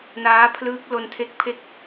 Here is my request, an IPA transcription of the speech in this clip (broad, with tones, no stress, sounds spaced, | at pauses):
n aː˦˥ pʰ l ɯː˦˥ k̚ l o˧ n tʰ e˦˥ k̚ pʰ e˥˩ k̚